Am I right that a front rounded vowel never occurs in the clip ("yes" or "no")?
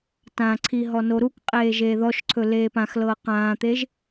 yes